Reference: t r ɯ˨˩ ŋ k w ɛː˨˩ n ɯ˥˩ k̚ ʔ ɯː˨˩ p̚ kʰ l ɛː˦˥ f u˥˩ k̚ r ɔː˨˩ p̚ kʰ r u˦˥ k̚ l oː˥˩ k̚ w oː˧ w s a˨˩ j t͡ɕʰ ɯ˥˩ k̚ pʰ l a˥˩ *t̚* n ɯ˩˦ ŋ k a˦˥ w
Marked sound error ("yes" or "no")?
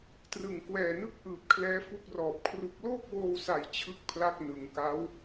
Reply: yes